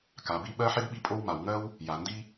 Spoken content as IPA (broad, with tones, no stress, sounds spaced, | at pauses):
k a˩ b i˦ ɓ ɜ˥ ħ i˥ d ɓ i˦ pʼ o˦ w m a˩ w ŋ ɜ˦ w | j a˩ n d i˦